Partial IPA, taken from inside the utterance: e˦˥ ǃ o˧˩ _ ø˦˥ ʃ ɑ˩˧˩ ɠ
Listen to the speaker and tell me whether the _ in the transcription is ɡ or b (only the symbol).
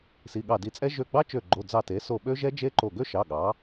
ɡ